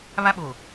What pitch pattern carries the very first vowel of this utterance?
high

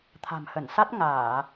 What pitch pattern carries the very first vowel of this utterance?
low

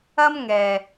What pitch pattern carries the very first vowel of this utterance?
high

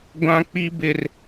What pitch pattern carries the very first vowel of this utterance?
high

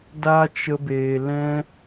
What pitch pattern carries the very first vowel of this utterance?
high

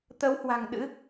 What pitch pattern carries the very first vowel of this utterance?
rising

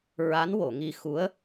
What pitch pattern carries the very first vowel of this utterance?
rising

